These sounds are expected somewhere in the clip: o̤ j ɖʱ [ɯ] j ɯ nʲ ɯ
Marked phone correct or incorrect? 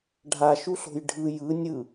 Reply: correct